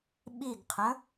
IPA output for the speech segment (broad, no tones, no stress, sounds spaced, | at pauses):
ɓ i ɡ qʰ ə̃